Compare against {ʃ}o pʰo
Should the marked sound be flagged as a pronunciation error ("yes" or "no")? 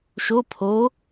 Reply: no